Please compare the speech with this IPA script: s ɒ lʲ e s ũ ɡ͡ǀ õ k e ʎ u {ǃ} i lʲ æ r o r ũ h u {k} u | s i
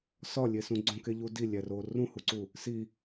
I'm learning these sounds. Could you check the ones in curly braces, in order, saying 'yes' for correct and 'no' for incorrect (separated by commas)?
no, no